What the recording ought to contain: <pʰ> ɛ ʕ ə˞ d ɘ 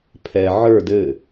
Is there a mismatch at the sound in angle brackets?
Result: no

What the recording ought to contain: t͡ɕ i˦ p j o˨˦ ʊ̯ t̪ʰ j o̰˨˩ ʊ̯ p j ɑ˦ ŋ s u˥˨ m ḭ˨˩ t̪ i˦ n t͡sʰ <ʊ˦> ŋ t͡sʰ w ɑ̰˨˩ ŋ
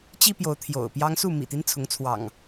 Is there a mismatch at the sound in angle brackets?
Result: yes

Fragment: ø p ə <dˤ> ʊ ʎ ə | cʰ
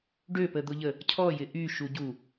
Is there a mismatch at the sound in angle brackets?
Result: yes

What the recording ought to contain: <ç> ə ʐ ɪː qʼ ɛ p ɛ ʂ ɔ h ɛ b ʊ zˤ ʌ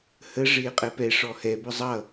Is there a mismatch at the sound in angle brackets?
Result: yes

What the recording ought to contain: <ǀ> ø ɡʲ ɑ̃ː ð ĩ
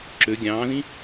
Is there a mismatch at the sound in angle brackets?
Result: yes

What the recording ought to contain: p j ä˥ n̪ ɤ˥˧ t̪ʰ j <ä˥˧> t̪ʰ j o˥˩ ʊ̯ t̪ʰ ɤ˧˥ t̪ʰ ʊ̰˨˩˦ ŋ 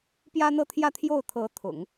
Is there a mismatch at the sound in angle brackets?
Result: no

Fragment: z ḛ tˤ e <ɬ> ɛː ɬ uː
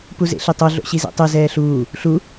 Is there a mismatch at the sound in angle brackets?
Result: yes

